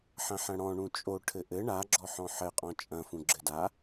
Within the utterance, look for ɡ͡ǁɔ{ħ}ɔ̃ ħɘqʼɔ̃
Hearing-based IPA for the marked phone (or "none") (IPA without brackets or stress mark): ħ